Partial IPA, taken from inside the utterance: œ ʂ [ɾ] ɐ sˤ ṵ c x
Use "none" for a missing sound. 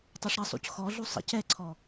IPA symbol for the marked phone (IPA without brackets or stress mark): ɾ